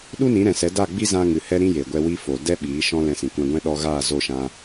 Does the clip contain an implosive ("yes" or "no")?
yes